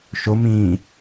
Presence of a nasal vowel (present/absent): present